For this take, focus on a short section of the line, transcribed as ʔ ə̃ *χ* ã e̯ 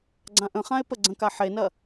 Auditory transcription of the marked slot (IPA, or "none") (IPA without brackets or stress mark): χ